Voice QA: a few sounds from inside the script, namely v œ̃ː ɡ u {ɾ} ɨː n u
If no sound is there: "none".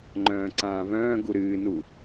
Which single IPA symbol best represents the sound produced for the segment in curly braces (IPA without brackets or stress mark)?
ɾ